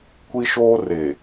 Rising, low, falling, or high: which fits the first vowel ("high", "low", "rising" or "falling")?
high